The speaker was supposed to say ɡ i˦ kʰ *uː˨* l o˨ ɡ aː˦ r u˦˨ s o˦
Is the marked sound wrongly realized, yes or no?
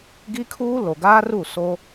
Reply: yes